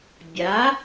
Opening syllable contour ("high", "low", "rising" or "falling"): rising